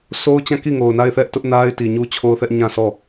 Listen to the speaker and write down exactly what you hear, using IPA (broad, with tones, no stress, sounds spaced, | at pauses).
sʰ o˦ ʊ̯ t͡ɕ ã˦˨ k i˦˨ ŋ o˨ ʊ̯ n a˦˨ ɪ̯ θ ɛ˦ ʔ t ʊ˦ ʔ n a˦ ɪ̯ t i˨ ɲ u˦ t͡ɕʰ o˦ ʊ̯ θ ɛ˦ ʔ ɲ ã˦˨ sʰ ɔ˦˨